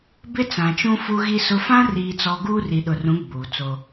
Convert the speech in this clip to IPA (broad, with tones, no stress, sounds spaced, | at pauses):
b ɪ˦ t͡s ã˨ t͡ʃ ũ˦ f u˦ ɣ i˦ s ʊ˦ f ã˦ r iː˨ t͡s ɔ˨ ɡ uː˦ r i˨ ɗ ʊ˨ r ũ˨˦ ɡ͡b uː˨ t͡s o˦